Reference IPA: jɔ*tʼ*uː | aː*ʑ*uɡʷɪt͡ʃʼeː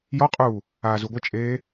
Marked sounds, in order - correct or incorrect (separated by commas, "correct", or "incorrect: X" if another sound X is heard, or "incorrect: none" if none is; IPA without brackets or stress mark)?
incorrect: qʼ, incorrect: z